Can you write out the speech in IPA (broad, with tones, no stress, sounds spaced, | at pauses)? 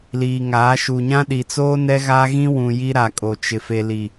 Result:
l iː˨ ŋ aː˨˦ ʃ u˨ ɲ ã˦ ɗ i˨ t͡s oː˦ n ɛ˦ ɣ a˦ ɣ ĩ˦ w ũ˨ j i˦ ɾ a˨ kʼ o˨ t͡ʃ ɪ˨ f e˨ l i˨